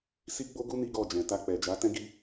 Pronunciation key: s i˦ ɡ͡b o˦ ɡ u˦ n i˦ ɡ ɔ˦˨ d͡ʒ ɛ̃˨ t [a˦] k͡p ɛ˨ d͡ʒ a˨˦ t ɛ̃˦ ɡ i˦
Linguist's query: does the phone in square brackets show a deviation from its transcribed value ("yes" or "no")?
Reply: yes